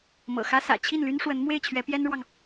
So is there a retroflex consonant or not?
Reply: yes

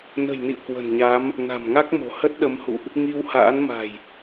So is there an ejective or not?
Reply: no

